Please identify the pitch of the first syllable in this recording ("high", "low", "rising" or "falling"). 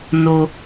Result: high